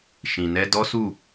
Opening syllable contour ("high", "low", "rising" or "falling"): low